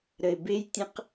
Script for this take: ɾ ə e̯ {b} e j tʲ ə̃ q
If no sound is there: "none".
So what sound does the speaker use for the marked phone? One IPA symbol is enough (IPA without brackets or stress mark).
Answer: b